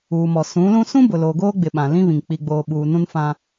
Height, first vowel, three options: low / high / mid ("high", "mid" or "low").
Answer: high